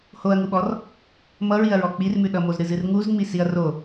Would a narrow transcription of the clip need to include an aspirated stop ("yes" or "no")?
no